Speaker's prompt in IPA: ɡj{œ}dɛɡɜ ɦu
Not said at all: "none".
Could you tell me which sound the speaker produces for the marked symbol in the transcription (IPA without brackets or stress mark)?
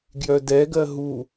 œ